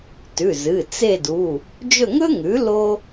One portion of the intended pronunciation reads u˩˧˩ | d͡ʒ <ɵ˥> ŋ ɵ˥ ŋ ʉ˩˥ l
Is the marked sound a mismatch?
yes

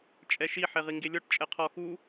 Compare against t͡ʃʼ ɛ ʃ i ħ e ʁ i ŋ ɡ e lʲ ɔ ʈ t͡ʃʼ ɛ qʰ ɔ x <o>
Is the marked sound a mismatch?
yes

